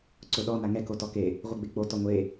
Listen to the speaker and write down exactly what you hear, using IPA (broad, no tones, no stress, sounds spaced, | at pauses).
ǀ ʊ ɗ ɔ n a ŋ ɛ k o t ɔ k e | ʁʷ i ɡ͡b e k͡p o t ɔ ŋʷ e